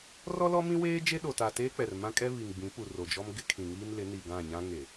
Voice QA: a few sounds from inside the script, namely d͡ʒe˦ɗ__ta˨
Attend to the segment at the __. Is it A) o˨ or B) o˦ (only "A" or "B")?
A